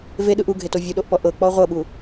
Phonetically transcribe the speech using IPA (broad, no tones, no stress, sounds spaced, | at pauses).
v e ɗ ɯ ʔ u ɡʱ e t o vʲ u ɗ o ʔ p ɔ ʔ ɤ k͡p ɔ ʁʷ ɤ ɓ u